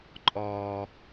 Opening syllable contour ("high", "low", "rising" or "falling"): high